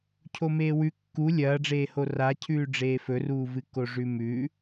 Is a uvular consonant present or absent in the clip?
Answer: absent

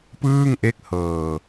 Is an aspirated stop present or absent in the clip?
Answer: absent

